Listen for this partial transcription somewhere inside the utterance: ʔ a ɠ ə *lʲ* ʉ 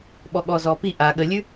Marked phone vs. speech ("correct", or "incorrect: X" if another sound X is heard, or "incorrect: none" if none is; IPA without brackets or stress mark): correct